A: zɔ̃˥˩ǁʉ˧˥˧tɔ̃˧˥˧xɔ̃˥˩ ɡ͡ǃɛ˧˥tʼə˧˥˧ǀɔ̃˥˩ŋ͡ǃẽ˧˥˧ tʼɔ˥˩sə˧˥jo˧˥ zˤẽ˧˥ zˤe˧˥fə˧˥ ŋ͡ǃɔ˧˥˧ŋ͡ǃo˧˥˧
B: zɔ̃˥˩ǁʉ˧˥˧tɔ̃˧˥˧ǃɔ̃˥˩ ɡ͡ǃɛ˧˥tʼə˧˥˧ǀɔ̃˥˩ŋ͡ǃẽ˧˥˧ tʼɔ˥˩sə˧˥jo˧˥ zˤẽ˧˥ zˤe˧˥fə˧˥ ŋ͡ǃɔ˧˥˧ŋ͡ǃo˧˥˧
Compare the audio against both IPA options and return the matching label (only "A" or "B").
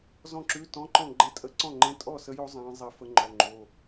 B